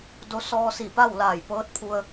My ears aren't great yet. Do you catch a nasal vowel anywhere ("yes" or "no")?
no